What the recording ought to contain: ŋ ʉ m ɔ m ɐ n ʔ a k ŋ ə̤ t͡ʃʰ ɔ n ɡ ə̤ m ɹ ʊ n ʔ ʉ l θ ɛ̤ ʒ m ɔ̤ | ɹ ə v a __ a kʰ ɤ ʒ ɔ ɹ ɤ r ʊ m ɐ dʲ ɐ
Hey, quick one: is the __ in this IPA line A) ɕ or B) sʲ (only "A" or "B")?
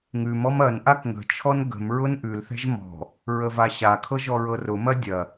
A